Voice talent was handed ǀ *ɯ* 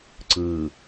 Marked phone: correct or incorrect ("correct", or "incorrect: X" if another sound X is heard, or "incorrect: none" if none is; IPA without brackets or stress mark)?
correct